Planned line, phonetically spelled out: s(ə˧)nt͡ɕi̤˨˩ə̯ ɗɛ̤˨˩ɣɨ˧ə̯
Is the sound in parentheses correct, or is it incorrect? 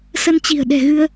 correct